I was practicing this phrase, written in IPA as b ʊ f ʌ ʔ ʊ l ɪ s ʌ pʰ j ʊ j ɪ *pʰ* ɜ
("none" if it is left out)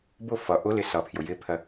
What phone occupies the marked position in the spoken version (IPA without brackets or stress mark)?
pʰ